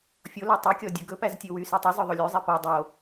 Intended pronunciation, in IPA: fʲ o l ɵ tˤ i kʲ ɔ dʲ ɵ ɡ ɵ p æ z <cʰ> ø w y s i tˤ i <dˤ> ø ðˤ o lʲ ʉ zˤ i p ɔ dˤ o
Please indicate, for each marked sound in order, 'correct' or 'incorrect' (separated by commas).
incorrect, incorrect